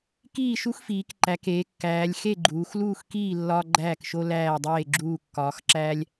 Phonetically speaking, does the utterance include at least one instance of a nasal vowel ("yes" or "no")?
no